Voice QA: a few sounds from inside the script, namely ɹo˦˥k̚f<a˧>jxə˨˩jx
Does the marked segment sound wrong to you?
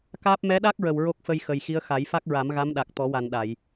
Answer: yes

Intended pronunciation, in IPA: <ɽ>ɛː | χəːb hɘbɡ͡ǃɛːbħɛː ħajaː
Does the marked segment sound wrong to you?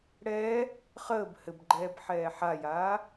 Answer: no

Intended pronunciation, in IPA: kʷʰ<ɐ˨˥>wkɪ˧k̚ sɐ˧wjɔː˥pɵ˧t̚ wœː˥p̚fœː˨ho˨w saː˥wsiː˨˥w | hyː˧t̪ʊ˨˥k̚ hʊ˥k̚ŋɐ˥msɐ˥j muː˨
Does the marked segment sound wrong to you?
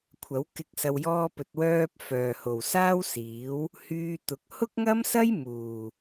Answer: no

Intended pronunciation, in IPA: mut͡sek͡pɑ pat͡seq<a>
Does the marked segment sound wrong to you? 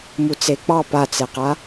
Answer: no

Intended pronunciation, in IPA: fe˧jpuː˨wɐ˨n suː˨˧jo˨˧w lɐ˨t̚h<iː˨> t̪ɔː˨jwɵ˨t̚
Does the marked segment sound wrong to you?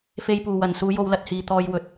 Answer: no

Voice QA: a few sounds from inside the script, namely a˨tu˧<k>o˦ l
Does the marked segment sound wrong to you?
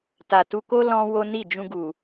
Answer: no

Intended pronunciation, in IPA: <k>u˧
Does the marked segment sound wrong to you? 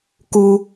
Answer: no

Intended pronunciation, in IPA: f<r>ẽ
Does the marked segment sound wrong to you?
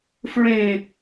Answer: yes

